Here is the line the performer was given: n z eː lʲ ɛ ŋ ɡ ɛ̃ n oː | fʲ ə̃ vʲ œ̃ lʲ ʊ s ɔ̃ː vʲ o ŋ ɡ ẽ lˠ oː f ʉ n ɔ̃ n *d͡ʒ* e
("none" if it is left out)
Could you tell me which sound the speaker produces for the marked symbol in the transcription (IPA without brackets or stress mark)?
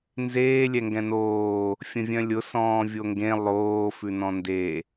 d